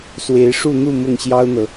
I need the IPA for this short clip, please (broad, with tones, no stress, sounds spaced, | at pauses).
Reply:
s w e˧˥ ɪ̯ ʂ u˥˧ n̪ u˥˧ m ʊ˥˩ ŋ ɕ j ɑ˥ ʊ̯ n̪ ɤ˨